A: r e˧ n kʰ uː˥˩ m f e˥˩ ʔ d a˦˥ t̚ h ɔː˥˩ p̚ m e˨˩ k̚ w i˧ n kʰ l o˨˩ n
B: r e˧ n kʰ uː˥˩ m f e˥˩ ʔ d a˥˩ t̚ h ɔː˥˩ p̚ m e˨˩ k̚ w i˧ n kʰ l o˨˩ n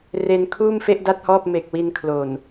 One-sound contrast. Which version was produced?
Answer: B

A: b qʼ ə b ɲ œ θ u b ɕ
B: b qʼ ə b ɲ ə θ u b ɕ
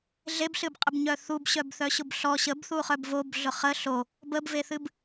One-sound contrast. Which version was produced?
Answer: A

